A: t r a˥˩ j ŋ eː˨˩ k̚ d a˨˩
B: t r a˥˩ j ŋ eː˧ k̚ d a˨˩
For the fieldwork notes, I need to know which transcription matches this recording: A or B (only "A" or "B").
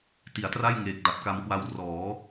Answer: A